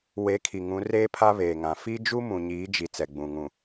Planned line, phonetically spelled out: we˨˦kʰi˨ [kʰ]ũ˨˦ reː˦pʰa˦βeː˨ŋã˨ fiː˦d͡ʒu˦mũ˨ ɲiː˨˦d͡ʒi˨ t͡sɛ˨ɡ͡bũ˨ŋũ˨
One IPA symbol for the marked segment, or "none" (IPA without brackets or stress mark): ŋ